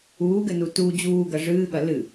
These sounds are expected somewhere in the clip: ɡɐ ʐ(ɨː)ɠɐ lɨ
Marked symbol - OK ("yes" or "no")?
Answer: yes